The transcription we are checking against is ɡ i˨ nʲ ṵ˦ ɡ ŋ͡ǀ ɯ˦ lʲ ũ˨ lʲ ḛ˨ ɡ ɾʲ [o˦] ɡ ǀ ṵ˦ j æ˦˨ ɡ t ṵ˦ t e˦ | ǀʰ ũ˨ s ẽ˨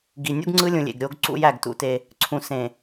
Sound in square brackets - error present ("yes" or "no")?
no